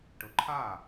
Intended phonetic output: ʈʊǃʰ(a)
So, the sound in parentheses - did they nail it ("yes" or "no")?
yes